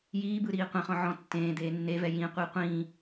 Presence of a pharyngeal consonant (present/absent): present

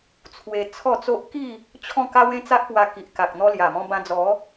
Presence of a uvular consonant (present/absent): absent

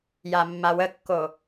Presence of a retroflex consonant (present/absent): absent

